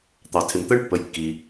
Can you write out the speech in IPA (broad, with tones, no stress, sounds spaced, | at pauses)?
t̪ ɑ˩ tʰ ɪ˩ m t̪ ɜ˦ ɳ pː ə˩˧ j kː i˩